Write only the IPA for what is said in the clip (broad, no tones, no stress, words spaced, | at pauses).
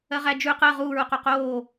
ɜʁæd͡ʒʉ qɜ ʁuːɹuqu qoː